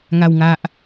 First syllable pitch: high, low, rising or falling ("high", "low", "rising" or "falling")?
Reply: low